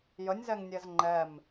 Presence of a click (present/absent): present